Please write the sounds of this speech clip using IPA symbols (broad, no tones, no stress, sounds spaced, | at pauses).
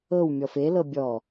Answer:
ɤ w mʲ ɔ f e l ɤ bʲ ɔ